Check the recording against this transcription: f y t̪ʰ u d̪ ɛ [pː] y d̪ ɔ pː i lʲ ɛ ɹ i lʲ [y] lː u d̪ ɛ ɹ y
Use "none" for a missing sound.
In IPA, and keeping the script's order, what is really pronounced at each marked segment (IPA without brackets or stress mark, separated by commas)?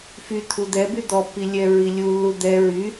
b, u